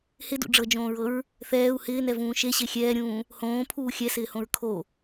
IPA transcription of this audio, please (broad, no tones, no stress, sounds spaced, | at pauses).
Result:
h ɪ d ṵ ɖ͡ʐ ɤ d͡ʒ õː ɹ ɤ ɹ | θ ɛː u̯ h ɪː n ɛ v ũː ʃ e ɕ e xʲ ɛː ɾʲ ũː | h õː pʰ uː xʲ ɛ s ɪː h õ ɹ kʰ o